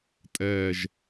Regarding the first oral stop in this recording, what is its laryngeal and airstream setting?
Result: ejective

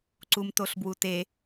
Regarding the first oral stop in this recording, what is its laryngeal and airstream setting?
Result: click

